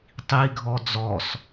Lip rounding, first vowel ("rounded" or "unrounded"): unrounded